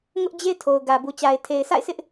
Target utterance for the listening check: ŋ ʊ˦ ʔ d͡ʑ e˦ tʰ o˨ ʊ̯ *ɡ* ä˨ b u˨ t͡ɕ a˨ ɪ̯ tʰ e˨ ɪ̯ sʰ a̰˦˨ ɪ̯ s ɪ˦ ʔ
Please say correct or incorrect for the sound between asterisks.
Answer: correct